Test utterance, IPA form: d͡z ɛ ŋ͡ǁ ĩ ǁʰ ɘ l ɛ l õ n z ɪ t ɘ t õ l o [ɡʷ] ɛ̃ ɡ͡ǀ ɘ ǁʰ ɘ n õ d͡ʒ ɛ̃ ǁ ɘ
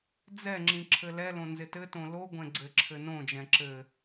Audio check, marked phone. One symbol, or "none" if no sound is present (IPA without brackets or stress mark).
ɡʷ